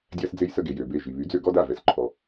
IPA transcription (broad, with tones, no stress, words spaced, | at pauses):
dʲa˦sd͡ze˦jsə˦ ɡe˩jø˩be˩˧˩ ʒi˩βy˩˥d͡zø˦ ɡɔ˦da˩˧˩vɛ˩s ǃʰɔ˩